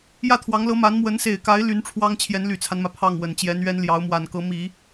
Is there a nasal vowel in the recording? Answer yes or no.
no